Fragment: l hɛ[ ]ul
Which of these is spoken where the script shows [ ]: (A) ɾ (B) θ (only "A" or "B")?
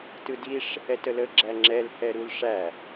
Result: A